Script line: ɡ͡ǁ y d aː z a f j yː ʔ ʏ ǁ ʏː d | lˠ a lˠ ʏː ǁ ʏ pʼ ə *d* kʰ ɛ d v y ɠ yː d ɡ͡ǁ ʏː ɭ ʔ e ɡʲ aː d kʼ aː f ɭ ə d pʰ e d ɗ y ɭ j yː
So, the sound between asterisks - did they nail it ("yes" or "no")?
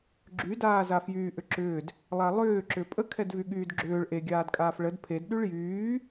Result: no